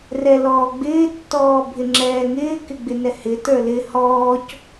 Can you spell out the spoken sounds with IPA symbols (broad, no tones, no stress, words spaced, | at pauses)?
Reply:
rɛlɔːɡ͡bɪː tːɔːbʱɪŋ͡ǁɛːŋɪː kɪɡ͡bɪnɛhɪ tə˞lɪ hɔːc